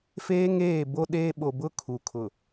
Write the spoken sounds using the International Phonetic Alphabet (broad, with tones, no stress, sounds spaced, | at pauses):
f eː˦ ŋ eː˦˨ b o˦ ɗ eː˦ ɓ o˨ b ʊ˦ kʰ u˨ kʰ ʊ˨